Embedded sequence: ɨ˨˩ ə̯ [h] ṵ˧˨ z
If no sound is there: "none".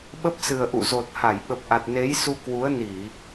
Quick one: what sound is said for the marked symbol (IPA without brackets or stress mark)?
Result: ʔ